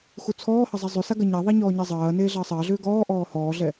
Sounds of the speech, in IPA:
x u t͡sʰ ɔː h ɐ zˤ ɛ zˤ ʏ s a ɡ ɐ ɲ a ðˤ a ɲ ɔː ɲ ɛ zˤ ɐː n eː ɮ ɐː sˤ ɐː ɮ ʏː ɡ ɔː ʔ ɔː h ɔː ɮ ɛ

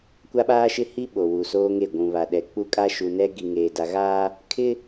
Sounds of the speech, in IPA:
kʷ a˦ ɓ aː˦ ʃ ɪ˦ h i˦ ɓ o˨ w u˨ s oː˦ ŋ e˦˨ ɡʷ ũ˨ β a˨ ɗ ɛ˨ k͡p u˦ kʼ a˦ ʃ u˨ n ɛ˦ ɡ i˨ ŋ eː˨ d a˨ ɣ aː˦ | kʰ ɪ˦

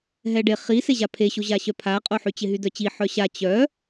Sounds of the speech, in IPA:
ɦ ɛ ɖ e χ i s e ʑ a pʰ e ɕ o ʑ a ɕ œ pʰ a qʼ o ħ y t͡ɕ ɪ ɦ y d œ t͡ɕ i ħ œ ɕ a t͡ɕ œ

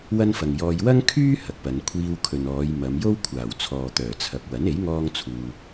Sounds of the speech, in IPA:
w ɐ˥ n f ɐ˨ ŋ j ɔː˧ j w ɐ˥ ŋ kʰ yː˥ h ɐ˨ k̚ p ɐ˨˧ n kʷʰ iː˧ w kʰ ɵ˨ n ɔː˨˧ j m ɐ˨˧ m j o˥ w kʷʰ aː˨˩ w t͡sʰ ɔː˨ t̪ œː˨˩ t͡sʰ ɐ˨ p̚ w ɐ˨˥ n e˨˥ j ŋ ɔː˥ ŋ t͡sʰ uː˧

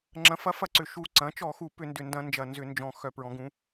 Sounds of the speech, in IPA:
ŋ͡ǁ ɐ̃˩˥ f ɐ˩˥ f ɐ˧˩˧ ǀ ʏ˨˩ ʃ u˨˩ ǀ ɐ̃˩˥ t͡ʃ ɔ˧˩˧ x u˧˩˧ p ʏ˧˩˧ n d ʏ˨˩ n d ɐ̃˧˩˧ n d͡ʒ ɐ˨˩ n z ʏ˧˩˧ n d͡ʒ ɔ̃˨˩ x œ˧˩˧ p ɹ ɔ̃˩˥ ɡ ũ˩˥

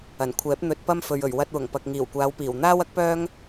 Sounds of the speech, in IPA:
ɐ˨˩ n kʷʰ ɛː˨˥ p̚ n̪ ɵ˧ t̚ p ɐ˥ m f ɵ˨ ɥ ɵ˨˩ ɥ w ɐ˧ t̚ w ʊ˨˩ ŋ p ɐ˨ k̚ ŋ iː˨˩ w kʷ aː˨˧ w p iː˨˩ w n̪ aː˥ w ɐ˥ k̚ p œː˥ ŋ

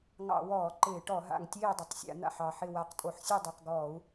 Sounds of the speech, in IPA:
ŋ ɑ̰˧˩˧ w ɔː˧˩˧ ǃ ɪː˧˩˧ ʈ ɔ˧˩˧ ɦ a̰˨˩ ŋ tʲ eː˦˨ dˤ ɪ˨˩ tˤ sʲ a̰˧˩˧ n̪ a̰˨˩ ħ ɑ˨˩ ħ ɪ˦˨ w a˨˩ q tʼ o˨˩ ħ sʲ u˦˨ dˤ u˨˩ q ɡ ɔː˧˩˧ u̯

